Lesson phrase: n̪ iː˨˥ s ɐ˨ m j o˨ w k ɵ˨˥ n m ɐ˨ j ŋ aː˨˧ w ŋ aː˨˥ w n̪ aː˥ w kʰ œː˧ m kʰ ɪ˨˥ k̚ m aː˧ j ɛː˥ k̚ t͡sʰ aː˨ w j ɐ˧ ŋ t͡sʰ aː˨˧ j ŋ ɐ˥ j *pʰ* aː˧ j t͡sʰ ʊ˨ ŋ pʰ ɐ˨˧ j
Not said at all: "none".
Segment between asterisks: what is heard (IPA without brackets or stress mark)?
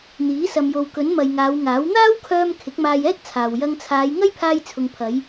pʰ